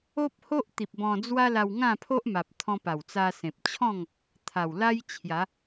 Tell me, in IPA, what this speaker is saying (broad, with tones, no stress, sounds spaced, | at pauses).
o˦ p̚ h o˦ ʔ t̪ i˨ p̚ b ɔ̃˧ d͡z w a˦ l a˧ w ŋ ã˥˧ pʰ o˦ ʔ m a˨ p̚ t̪ʰ ɔ̃˧ p a˨˩ w t͡s a˧ s ẽ˨ p̚ t͡ɕʰ ɔ̃˥˧ ŋ | t̪ʰ a˨˩ w l a˦ j t͡ɕʰ j a˨˦